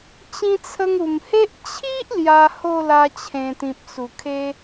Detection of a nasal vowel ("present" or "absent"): present